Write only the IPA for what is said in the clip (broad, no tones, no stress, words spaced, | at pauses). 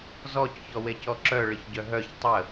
zɔc çɔwecɔǁœ ɭəçɟœɦœç tˤə